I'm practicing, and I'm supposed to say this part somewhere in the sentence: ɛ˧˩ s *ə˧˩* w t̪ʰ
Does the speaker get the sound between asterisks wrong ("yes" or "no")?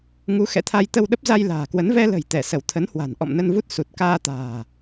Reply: no